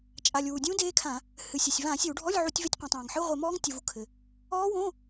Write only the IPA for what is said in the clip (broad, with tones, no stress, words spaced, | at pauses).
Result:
t͡ʃʼa˩lʲ wu˩dʲũ˦˥ deː˦˥kʰã˧˩˧ | hɨ˩sʲɐ˩sʲ vã˧˩˧sʲɘ˧˩˧w ɖʱɔ˧˥˧lʲ ʕu˧˩˧tʲve˧˥˧tʲqʷɐ̃ː˩tˤ ãː˩ŋ ħɨ˧˥˧ʁʷe˧˩˧mɔː˦˥ŋtʲu˩v u˩kʰɘ˩ | ɔː˦˥wõ˧˥˧